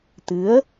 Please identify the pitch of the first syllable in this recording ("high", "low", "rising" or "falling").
rising